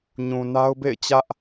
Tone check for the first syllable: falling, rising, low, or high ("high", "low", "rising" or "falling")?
low